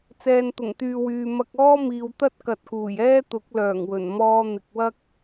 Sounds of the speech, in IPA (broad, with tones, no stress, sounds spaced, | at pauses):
t͡s ɛː˨ n t̪ ʊ˨˩ ŋ t̪ yː˨ w yː˨ m ɐ˧ k̚ ɔː˥ m iː˨ w t̪ ɐ˥ t̚ k ɐ˨ t̚ k uː˨˩ j ɛː˥ t̪ ʊ˨˥ k̚ l œː˨˩ ŋ w ɵ˨˩ n m ɔː˧ n̪ ɪ˨ k̚ w ɐ˥ k̚